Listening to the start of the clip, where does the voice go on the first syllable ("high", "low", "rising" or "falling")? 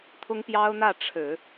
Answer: high